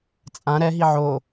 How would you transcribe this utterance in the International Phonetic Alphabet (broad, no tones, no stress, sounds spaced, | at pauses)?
t͡sʼ ã ɾ ɛ ɦ i ʕ o